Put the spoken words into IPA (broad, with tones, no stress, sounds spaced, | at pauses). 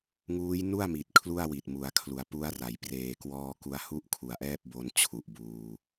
ŋ uː˦˥ j n u˥˩ a̯ m i˨˩ t̚ kʰ l u˥˩ a̯ w i˨˩ t̚ m u˩˦ a̯ kʰ l u˩˦ a̯ p u˦˥ a̯ r a˩˦ j p r eː˨˩ k w ɔː˧ k u˧ a̯ h u˥˩ ʔ kʰ u˨˩ a̯ ʔ ɛː˥˩ p̚ b o˧ n t͡ɕʰ u˨˩ ʔ b uː˧